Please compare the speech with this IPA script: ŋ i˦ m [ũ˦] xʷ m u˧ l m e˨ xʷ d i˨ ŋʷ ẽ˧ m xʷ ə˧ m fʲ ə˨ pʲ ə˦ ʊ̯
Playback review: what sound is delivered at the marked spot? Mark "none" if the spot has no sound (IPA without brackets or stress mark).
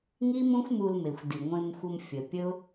ũ˦